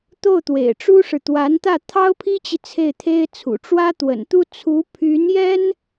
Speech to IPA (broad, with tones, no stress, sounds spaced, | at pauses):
t̪ o˥˩ ʊ̯ t̪ w ḛ˨˩ ɪ̯ ʈ͡ʂ u˥ ʂ ɻ̩˨ t̪ w a˧˥ n t̪ ä˥˩ t̪ʰ ɑ˥ ʊ̯ pʰ i˥ t͡ɕ i˨ t͡sʰ e˥˩ ɪ̯ t̪ʰ e˥ ɪ̯ t͡sʰ ṵ˨˩ ʈ͡ʂ w ä˥ t̪ w ə̰˨˩ n t̪ u˥ t͡sʰ u˧˥ pʰ y˧˥ n j ɛ˥ n